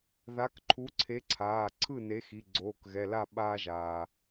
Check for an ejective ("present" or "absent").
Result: absent